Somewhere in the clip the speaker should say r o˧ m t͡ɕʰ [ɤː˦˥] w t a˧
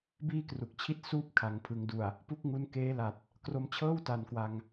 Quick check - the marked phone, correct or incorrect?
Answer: incorrect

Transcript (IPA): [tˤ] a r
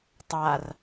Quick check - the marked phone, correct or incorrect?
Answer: correct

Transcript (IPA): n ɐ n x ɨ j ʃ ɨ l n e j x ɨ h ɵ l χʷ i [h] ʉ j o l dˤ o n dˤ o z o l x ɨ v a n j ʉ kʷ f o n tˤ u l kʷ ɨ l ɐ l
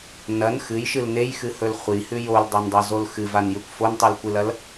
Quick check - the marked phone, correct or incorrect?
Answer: correct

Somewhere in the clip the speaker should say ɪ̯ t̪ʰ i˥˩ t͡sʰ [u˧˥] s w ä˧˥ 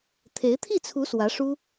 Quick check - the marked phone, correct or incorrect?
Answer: correct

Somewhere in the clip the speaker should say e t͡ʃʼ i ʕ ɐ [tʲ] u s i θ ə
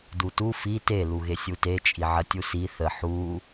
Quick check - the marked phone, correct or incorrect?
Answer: correct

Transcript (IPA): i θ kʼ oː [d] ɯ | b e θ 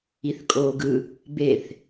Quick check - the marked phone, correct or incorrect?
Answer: incorrect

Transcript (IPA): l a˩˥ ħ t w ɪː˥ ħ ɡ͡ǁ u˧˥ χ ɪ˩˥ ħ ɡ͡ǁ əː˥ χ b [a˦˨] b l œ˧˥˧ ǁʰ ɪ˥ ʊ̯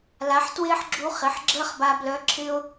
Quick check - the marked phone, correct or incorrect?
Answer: incorrect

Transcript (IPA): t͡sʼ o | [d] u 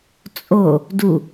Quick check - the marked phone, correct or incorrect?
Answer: correct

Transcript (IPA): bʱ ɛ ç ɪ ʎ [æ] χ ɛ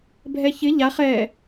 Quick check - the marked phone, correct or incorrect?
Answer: incorrect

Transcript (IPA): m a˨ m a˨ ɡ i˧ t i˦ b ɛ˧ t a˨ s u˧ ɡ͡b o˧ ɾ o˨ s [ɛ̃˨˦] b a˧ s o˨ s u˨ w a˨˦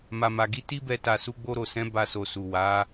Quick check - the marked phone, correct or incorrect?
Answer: correct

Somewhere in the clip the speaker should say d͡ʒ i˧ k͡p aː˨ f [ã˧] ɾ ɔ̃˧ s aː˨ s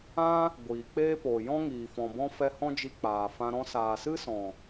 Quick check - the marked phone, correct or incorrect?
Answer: correct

